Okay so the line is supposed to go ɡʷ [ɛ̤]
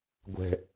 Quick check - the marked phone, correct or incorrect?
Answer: correct